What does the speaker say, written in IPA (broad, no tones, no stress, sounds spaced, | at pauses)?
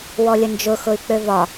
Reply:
w ɔ lʲ ə n d͡ʒ ʊ x ʊ y̯ k͡p ø v ɒ